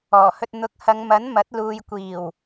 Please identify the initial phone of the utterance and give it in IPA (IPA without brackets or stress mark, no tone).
ɔː